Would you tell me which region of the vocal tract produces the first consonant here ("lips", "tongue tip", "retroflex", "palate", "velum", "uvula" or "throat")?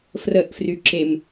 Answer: lips